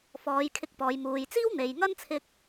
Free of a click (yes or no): yes